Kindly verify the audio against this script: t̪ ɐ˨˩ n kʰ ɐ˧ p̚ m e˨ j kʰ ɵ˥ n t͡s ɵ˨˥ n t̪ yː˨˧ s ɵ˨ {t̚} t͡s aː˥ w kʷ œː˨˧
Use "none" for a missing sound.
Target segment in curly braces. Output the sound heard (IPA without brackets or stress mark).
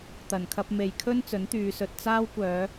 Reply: t̚